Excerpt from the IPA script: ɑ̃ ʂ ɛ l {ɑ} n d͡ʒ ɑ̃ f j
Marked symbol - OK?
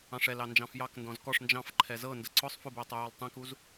yes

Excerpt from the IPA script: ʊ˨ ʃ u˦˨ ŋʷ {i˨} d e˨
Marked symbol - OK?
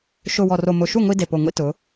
no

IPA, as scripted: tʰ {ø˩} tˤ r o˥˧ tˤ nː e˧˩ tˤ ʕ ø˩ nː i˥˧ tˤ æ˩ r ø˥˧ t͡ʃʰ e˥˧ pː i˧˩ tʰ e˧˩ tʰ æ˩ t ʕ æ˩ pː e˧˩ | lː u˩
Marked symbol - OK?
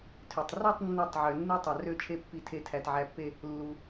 yes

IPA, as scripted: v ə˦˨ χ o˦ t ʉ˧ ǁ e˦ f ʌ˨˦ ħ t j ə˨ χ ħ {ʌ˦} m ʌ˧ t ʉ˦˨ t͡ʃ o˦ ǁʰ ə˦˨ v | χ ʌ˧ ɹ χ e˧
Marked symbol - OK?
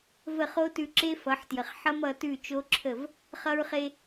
yes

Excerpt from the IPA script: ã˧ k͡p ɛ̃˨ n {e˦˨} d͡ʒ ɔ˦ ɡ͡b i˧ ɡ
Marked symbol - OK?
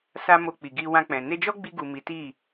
no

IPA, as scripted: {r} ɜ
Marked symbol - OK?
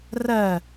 yes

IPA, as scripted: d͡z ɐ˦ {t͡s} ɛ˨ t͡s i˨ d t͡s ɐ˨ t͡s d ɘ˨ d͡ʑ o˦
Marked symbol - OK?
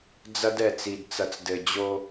no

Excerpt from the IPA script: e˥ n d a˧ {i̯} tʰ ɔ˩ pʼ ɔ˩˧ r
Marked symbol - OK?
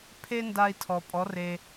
yes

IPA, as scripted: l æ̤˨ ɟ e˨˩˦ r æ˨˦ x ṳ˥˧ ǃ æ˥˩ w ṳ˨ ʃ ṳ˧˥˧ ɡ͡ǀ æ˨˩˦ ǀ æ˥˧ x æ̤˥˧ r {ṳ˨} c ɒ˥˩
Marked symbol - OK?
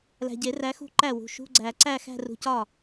yes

